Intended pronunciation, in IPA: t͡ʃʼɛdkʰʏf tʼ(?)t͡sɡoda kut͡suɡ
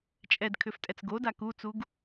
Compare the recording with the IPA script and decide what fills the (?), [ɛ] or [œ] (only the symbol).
ɛ